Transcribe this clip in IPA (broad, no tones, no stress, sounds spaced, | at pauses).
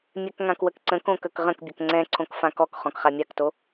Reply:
mʲ ɛ k ŋ ã k w ə k ǀ ə̃ k õ k ə k ʁ ə̃ k bʲ ə k ŋ͡ǀ ɛ̃ ǀʰ õ k f ã k ɔ k χ ɔ̃ k χ a mʲ a k t o